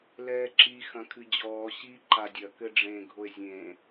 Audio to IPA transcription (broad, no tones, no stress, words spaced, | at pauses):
lɛːǁi xɐ̃kʰɨd͡ʑɔː ɕi ǃadʲɐ kɘɖ͡ʐẽ ɡʱoe̯zʲẽ